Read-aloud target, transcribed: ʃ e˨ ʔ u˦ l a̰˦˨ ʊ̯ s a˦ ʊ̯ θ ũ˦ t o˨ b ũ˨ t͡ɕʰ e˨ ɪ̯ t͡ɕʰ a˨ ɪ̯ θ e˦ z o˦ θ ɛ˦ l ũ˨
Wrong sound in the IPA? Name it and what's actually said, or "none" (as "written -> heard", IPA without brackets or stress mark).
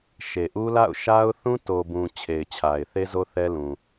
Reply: s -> ʃ